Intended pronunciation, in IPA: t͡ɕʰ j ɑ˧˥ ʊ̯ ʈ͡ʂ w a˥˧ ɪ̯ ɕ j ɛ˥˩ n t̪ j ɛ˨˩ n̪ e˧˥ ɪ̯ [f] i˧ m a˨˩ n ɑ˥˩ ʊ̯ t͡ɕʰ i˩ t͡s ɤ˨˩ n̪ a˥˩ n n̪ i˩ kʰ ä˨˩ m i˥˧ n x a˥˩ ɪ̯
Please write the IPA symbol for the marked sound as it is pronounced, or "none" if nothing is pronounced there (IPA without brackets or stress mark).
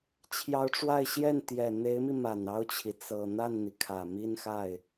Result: m